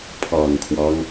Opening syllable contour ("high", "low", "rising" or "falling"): low